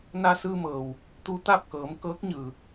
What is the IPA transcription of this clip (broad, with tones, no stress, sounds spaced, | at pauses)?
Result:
n a˧ s ɯː˧ m ɤː˩ w | t̪ u˧ t̪ a˥˨ p̚ k ɤː˩˧ m k ɤː˧˥ k̚ ɲ ɯː˩